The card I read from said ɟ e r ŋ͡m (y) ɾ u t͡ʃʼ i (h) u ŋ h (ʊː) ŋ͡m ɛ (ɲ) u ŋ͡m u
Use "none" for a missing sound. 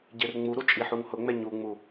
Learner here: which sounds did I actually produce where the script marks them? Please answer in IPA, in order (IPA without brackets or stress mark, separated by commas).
u, ħ, ʊ, ɲ